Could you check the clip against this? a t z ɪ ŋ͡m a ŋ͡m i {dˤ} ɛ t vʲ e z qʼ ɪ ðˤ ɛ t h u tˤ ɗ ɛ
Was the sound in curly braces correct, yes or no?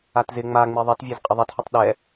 no